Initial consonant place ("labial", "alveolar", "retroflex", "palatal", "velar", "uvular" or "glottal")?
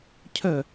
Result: palatal